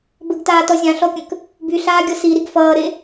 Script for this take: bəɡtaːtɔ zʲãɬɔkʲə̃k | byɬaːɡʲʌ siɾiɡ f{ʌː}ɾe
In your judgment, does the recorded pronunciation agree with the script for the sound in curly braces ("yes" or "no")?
yes